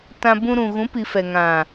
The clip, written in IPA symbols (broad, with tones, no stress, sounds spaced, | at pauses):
t ã˧ b ũ˧ ɾ ũ˨ ɣ ũ˨˦ p i˨ f ɛ˨ ŋ ã˨